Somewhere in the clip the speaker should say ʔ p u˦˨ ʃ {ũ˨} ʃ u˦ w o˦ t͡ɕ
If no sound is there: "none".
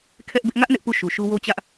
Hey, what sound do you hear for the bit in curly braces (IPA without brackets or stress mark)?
u˨